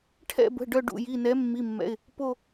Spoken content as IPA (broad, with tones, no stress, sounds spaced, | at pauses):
ʈʰ ɛ̰˦˨ b ə̤˩˧˩ ɖ œ˦˨ ɖ ṵ˩˧˩ j i˩˧˩ n ɛ˨˥ mː i˩˧˩ mː ɛ̰˩˧˩ ɪ̯ | p o˦˨